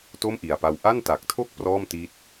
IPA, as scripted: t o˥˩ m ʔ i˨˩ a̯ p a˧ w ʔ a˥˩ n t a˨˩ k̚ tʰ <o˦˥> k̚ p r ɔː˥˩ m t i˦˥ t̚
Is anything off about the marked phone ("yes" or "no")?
yes